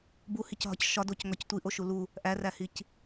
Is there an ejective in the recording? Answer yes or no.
no